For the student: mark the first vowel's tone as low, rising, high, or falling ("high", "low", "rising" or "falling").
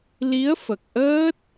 rising